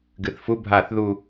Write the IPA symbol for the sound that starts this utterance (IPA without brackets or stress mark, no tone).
ɡ